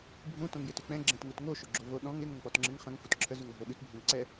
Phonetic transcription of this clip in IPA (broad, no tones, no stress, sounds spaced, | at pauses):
bʱ ũ t õ ŋ j ɪ t ʉ k͡p ɛ̃ ɡ͡ǁ ɛ̃ t ŋ u t ŋ o ʃ ʏ ɡ͡ǁ o v o ɗ ɔ̃ ŋ ɪ ŋ õ ŋ k͡p ɔ t ŋ͡ǁ ɪ ŋ χ ə̃ ŋ f u t ǁʰ ə z ʉ ŋ ə ɦ o ɗ ʉ t bʱ ə̃ ŋ ǀ ɛ